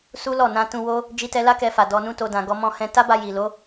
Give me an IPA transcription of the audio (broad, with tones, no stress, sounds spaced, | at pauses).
s u˦ l ɔ˦˨ n ã˧ t ũ˧ w o˧ | d͡ʒ i˧ t ɛ˧ l a˦ k ɛ˧ f a˨ d ɔ˧ n ũ˦ t o˧ d ã˨ ɡ ɔ˧ m ɔ̃˧ h ɛ̃˧ t a˦ b a˧ j i˨ l o˨˦